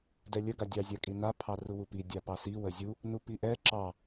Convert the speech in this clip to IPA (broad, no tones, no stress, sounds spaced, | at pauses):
d ɛ lʲ ə ɡ a dʲ ɑ zʲ a kʼ i n a pʰ ɑ r u w u p i dʲ a p ɑ s i w ə zʲ u | n u p i ʔ ɛ ǁ ɑ